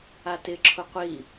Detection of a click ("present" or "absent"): present